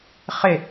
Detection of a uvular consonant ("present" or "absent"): present